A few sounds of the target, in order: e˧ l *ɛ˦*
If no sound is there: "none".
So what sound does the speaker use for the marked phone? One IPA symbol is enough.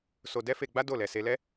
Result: ɛ˦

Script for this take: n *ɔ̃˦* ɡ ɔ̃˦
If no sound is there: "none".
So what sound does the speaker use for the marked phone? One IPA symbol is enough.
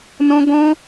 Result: ɔ̃˦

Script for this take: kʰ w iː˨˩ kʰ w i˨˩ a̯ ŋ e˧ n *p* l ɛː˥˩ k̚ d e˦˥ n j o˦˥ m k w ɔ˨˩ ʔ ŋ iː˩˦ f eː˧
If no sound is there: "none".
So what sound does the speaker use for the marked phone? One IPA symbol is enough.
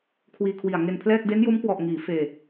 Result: pʰ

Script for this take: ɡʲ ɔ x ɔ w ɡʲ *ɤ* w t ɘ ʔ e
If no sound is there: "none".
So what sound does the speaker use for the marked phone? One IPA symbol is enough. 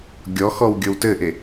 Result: ɤ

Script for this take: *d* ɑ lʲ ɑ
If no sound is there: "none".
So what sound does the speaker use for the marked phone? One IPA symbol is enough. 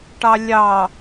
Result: ʈ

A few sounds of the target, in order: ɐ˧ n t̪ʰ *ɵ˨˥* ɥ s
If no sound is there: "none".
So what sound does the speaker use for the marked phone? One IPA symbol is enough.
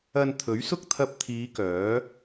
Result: ɵ˨˥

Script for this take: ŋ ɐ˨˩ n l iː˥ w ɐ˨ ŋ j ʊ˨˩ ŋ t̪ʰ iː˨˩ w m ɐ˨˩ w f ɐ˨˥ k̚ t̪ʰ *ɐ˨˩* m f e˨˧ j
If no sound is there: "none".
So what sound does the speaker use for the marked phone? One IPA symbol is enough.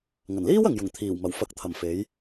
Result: ɐ˨˩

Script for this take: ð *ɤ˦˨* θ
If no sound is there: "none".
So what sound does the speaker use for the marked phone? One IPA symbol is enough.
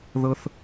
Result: ɤ˦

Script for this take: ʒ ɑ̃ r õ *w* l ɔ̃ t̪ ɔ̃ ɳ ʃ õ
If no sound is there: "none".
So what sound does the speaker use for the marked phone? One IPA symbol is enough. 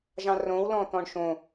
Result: w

